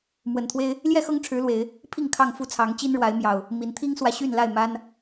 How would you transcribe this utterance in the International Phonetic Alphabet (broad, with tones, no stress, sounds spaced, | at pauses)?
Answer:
m w ə˨˩ n t̪ʰ w e˦ ɪ̯ | l j ɛ˥˨ x ɤ˦ ŋ ʈ͡ʂʰ ɻ̩˨˦ l w e˨˦ ɪ̯ | pʰ i˥˨ ŋ kʰ ɑ˥˨ ŋ f u˥˨ t͡sʰ ɑ˨˦ ŋ t͡ɕ i˦ n ɻ w a˨˦ ɪ̯ m j ɑ˨˩ ʊ̯ | m i˨˦ n t̪ʰ i˦ ŋ s w ä˨ ɕ y˥˨ n l a˥˨ ɪ̯ m a˦ n